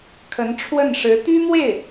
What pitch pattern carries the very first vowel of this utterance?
rising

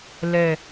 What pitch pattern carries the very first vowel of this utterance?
low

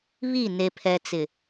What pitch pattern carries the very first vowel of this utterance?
falling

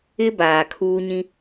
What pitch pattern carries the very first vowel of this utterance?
high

